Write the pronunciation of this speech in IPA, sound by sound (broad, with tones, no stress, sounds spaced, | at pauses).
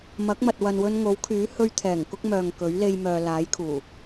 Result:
m ɐ˨˥ k̚ m ɐ˨ t̚ w ɐ˨ n w ɵ˧ n ŋ o˨˥ w kʰ yː˨˥ h ɵ˧ ɥ t̪ʰ ɛː˨˩ ŋ k ʊ˥ k̚ m œː˨ ŋ k ɵ˨˥ ɥ l e˧ j m œː˨ l aː˨˥ j kʰ uː˨˩